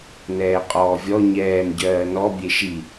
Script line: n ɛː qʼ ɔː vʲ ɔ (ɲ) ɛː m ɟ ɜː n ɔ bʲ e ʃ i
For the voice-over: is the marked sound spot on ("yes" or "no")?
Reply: yes